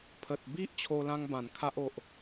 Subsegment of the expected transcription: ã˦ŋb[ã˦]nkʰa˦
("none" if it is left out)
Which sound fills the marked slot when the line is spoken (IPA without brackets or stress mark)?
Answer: ã˨˩